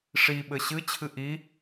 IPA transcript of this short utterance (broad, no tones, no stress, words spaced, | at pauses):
ʂi ɓɘɕɨt͡ɕʰɨ ʔi